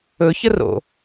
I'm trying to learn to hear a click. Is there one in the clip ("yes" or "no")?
no